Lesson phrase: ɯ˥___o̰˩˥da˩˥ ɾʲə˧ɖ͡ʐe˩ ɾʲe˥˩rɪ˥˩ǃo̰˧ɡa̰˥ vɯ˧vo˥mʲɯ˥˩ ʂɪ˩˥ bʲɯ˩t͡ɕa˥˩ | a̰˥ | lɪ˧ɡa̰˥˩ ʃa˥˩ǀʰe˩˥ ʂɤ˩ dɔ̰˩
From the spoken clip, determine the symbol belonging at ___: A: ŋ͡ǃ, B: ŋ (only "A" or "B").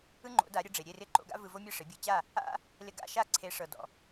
A